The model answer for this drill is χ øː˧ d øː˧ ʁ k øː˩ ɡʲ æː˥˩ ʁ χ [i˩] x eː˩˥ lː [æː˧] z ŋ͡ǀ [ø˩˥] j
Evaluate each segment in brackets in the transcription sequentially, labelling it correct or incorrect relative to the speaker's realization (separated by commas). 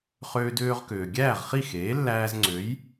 incorrect, correct, correct